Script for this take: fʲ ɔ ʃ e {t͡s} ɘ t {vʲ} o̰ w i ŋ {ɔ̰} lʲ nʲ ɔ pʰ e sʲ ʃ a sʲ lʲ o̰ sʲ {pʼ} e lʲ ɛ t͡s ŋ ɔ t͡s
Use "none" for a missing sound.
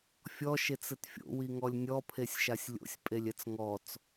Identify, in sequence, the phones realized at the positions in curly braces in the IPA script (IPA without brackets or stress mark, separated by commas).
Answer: t͡s, fʲ, ɔ, pʼ